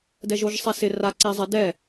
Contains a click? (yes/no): yes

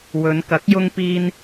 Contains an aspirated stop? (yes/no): no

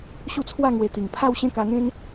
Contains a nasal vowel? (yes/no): yes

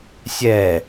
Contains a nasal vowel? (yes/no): no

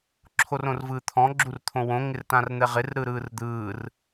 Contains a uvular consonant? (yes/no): yes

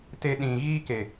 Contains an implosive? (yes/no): yes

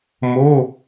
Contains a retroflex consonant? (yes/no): no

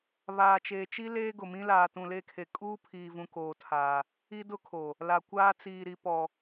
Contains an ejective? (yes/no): yes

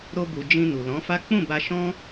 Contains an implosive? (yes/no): no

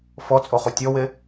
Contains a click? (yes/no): no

